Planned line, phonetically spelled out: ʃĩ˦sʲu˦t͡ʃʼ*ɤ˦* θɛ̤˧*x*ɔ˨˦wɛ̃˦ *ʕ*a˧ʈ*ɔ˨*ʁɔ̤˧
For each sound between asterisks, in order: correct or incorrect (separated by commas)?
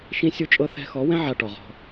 correct, correct, correct, correct